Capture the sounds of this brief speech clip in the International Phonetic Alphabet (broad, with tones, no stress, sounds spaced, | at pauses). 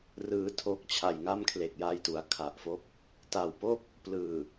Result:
r ɯː˧ tʰ o˥˩ k̚ t͡ɕʰ a˨˩ j ŋ a˥˩ m kʰ l e˨˩ k̚ j a˦˥ j t u˩˦ a̯ kʰ a˨˩ ʔ f o˦˥ k̚ | t a˨˩ w p o˥˩ k̚ | p l ɯː˨˩